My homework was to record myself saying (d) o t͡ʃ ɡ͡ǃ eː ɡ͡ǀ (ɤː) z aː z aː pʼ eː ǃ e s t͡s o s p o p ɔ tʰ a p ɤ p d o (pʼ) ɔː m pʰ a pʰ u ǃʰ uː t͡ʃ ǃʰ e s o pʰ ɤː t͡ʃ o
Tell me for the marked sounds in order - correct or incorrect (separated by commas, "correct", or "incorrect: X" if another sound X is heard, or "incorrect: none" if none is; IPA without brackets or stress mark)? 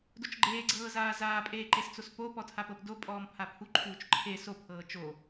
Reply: correct, correct, correct